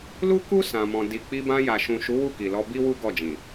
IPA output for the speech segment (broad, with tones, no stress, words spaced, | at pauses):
lu˦ku˦ sã˧mɔ̃˧ di˨k͡pi˧bã˧ ja˨ʃũ˨ʃu˨˦ wu˦˨ki˨lɔ˧ bi˦wu˦ ɡɔ˦˨d͡ʒĩ˨